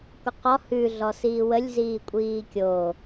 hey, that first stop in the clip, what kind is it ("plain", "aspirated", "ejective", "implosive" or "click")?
plain